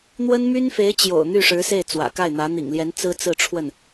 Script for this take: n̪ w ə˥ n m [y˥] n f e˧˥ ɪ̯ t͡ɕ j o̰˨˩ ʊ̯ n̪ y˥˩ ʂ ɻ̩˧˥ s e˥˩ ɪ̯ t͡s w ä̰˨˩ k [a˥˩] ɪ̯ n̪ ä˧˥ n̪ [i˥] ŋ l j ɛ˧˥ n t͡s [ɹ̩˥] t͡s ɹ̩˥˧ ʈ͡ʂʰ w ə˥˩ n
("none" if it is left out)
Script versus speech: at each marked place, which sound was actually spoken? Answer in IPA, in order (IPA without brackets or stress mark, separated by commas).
y˥, a˥˩, ḭ˨˩, ɹ̩˥